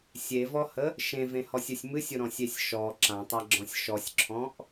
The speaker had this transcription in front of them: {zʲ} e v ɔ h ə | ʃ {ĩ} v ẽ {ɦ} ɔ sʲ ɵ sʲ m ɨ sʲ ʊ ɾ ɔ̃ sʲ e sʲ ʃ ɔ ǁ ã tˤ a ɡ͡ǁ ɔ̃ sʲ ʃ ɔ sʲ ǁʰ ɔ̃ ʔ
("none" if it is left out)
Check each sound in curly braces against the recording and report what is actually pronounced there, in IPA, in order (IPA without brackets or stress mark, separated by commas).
sʲ, ẽ, h